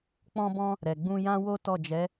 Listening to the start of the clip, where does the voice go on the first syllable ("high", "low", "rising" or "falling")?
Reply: high